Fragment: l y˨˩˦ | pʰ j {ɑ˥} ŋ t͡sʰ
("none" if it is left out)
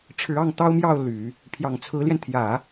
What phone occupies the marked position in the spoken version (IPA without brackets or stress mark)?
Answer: ɑ˨˩